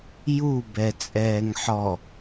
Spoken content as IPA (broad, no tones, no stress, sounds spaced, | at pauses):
j u b ɛ t͡sʼ ɛː ŋ ħ ɔ